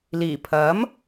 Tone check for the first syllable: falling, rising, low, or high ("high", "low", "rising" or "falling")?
low